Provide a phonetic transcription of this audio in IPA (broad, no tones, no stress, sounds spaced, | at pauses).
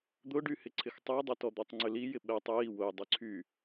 d̪ ʊ ɖ y h ɪ ǀʰ ɪ x tˤ œ dˤ ʏ t ɔ d̪ ɔ tˤ ŋ͡ǀ ʏ l i j ɪ ɓ ɛ tˤ j i w ʊ j dˤ y ǀʰ y